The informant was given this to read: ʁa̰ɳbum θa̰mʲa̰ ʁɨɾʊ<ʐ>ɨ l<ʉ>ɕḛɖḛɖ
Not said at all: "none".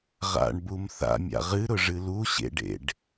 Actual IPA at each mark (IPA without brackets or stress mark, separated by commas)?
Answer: ʐ, u